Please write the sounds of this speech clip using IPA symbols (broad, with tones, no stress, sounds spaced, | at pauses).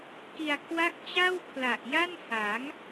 k i˧ a̯ kʰ w a˥˩ k̚ t͡ɕ a˥˩ w kʰ l a˨˩ ʔ j a˥˩ n h a˩˦ ŋ